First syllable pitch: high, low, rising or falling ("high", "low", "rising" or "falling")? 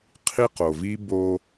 high